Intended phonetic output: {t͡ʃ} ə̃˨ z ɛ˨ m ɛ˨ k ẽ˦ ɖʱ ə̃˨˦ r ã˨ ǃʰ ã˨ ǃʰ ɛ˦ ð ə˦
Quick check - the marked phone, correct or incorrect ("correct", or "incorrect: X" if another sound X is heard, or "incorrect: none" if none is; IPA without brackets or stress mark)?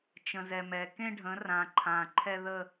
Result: correct